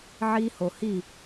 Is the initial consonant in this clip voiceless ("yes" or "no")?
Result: no